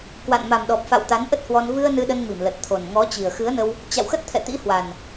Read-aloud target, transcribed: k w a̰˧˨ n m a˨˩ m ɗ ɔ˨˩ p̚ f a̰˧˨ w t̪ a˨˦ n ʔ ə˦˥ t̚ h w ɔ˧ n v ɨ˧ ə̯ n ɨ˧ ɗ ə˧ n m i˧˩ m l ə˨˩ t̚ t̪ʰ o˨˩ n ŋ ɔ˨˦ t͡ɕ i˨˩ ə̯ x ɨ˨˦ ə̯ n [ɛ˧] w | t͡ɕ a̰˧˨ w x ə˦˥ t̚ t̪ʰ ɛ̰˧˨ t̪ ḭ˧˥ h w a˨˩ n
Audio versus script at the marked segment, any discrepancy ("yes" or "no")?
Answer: yes